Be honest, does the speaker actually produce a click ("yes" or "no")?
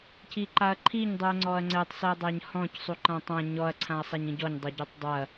yes